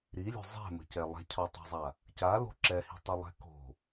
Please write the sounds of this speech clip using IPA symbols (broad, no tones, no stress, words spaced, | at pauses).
ɾilʲo̤ zˤɛ̤mə̤cɛ lˠɛ̤cʰɔtˤo̤zˤa | calo̤ ǁɛhi̤tˤəlˠɛ̤ ko̤